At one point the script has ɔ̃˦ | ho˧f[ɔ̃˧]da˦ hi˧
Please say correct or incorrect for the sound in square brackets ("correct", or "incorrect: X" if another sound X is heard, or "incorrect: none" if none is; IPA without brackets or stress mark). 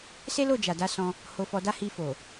incorrect: ɔ˧